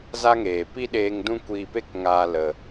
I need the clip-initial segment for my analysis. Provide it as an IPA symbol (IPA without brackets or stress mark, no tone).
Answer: z